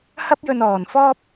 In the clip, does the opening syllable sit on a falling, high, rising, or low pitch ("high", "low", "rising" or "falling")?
high